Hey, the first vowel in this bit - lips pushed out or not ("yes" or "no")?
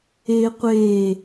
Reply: no